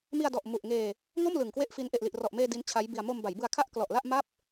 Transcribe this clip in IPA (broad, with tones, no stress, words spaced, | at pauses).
mi˧a̯dɔ˨˩ʔ mu˨˩ʔŋeː˧ | ŋo˥˩m lɯ˨˩ŋkwe˥˩ʔfi˦˥n ʔe˨˩ʔli˨˩ʔrɔ˨˩ʔmeː˧ di˦˥nt͡ɕʰa˦˥jbi˧a̯ mo˧mba˩˦jbɯ˧a̯kʰa˥˩ʔ klɔ˨˩ʔla˥˩ʔ ma˦˥p̚